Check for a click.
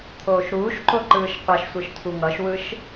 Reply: present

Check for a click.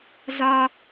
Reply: absent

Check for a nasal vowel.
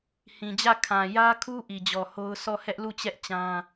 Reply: present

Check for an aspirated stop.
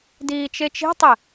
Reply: absent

